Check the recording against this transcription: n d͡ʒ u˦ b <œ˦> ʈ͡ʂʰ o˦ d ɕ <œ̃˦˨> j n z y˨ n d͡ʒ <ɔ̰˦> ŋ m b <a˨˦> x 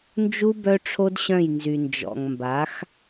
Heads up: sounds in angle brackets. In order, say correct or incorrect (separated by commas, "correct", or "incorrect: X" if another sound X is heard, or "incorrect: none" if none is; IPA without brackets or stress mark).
correct, correct, incorrect: ɔ̰˨, correct